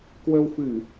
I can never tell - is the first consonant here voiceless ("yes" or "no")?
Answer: yes